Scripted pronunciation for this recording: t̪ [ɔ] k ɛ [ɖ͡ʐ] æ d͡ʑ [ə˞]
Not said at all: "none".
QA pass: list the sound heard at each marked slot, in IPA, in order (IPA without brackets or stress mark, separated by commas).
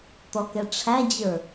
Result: ɔ, ʈ͡ʂʰ, ə˞